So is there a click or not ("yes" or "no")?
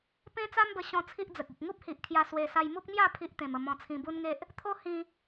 no